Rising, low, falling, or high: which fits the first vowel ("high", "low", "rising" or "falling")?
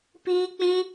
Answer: high